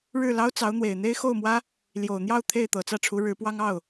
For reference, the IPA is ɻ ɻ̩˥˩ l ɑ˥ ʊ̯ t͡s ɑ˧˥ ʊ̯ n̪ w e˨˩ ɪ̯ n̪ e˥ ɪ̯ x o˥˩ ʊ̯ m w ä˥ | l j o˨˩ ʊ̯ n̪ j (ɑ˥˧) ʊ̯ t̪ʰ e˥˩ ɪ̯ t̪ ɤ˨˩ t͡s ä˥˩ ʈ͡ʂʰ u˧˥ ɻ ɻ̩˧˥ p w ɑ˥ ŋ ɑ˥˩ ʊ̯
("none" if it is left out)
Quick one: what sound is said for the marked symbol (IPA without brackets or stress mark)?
ɑ˥˧